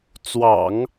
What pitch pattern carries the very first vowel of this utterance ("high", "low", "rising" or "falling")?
low